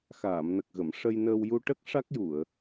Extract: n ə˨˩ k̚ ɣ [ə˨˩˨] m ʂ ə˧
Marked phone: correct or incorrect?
correct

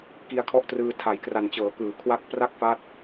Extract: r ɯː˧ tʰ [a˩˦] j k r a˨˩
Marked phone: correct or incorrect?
correct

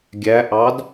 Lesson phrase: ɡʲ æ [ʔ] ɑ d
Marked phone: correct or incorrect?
correct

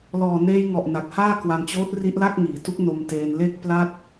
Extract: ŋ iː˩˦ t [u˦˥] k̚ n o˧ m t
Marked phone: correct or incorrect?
correct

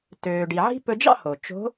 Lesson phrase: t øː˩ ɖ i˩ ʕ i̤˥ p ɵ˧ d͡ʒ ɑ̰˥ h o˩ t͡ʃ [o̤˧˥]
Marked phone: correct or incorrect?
correct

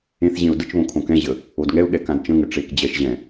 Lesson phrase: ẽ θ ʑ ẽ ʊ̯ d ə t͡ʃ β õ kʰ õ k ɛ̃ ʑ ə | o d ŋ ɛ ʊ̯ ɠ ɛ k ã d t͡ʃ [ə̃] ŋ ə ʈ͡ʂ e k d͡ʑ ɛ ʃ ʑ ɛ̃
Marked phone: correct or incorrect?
correct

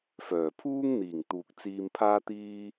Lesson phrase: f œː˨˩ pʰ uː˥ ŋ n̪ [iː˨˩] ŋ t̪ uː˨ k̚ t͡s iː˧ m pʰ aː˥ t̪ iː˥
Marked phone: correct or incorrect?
correct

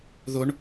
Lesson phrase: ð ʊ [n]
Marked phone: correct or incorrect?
incorrect: ɳ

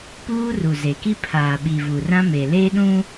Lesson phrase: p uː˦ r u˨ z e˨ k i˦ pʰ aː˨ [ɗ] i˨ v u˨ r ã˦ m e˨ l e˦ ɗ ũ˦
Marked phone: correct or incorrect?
incorrect: ɓ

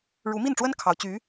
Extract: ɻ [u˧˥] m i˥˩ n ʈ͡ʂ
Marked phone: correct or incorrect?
correct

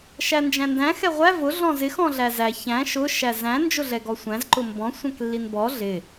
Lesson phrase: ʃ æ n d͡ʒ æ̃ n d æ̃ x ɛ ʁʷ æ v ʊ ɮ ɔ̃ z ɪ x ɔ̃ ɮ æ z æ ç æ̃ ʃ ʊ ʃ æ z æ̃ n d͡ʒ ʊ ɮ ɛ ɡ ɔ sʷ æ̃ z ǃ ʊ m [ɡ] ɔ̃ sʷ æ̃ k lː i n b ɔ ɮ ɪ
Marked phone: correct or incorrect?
incorrect: b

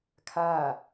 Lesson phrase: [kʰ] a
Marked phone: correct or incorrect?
correct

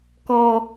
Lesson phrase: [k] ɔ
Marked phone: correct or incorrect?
correct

